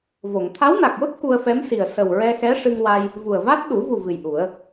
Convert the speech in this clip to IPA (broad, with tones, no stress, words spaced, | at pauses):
vo˨˩˨ŋ t̪ʰa˧˥wna˨˩k̚jo˦˥t̚ ku˧ə̯fɛ˧˥msi˨˩ə̯ sə˨˩wɹɛ˧xɛ˧˥ ʂɨ˧ŋwa˧j | vu˨˩ə̯va˦˥t̚ ɗu˨˩˦vu˨˩ vɨ˨˩jʔu˨˩˦ə̯